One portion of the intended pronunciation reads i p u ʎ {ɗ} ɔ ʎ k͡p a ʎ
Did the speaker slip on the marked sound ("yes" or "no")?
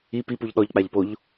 no